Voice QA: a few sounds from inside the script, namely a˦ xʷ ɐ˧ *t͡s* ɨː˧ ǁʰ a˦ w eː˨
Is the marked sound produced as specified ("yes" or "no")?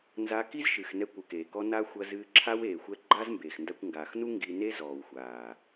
no